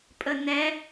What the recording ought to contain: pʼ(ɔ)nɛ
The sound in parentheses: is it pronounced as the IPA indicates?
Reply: no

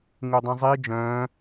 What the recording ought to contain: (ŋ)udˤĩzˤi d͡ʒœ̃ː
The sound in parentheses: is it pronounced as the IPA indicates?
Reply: yes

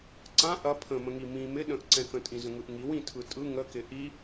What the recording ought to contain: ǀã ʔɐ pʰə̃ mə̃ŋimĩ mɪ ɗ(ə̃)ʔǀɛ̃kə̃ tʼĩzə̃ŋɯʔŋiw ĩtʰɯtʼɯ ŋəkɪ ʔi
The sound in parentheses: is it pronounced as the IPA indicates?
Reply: yes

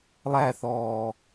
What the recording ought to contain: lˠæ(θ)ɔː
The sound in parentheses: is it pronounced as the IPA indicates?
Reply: yes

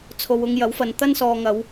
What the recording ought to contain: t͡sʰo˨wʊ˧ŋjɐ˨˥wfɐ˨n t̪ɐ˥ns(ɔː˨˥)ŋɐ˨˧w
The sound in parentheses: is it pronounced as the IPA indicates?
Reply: no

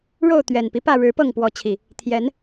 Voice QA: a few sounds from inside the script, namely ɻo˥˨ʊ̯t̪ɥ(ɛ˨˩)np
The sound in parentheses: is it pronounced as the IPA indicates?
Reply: yes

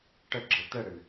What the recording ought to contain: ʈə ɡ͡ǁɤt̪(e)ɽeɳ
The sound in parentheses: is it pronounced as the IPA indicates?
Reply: no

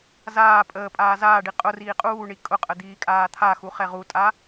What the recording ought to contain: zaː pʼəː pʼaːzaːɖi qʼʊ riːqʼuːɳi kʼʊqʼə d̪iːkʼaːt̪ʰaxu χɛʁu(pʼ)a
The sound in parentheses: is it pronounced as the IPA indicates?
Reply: no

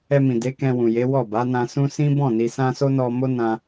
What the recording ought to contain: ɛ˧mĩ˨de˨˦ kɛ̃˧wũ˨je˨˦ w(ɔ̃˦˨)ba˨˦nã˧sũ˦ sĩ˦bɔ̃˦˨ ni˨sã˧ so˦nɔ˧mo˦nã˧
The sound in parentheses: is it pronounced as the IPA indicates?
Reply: no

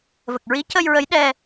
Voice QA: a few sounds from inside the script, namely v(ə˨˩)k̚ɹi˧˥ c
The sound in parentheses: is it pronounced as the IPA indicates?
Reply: yes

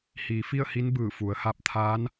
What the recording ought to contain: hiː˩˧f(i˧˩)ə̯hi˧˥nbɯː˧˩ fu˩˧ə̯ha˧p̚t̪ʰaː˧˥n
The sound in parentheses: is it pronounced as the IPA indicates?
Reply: no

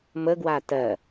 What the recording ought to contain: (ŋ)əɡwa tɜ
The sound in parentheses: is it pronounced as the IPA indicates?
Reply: no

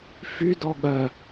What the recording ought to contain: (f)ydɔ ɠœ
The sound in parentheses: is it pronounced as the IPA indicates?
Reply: yes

